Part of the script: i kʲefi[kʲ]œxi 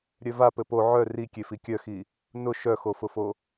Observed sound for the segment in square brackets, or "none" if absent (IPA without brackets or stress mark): kʲ